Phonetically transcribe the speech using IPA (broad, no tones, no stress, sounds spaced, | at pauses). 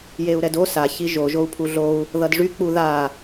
j e u̯ ɾ ɛ d o s a ç i ʒ o ʒ o u̯ pʰ u ɮ o u̯ | ð ʌ d ʐ y k͡p u ð a